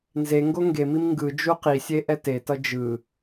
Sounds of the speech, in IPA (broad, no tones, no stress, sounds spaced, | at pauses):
n z e ŋ ɡ o ŋ ɡ e m i m ŋ ɡ ɯ d͡ʒ u q i sʲ e ʔ ɛ t e t ʌ d͡ʒ ɯ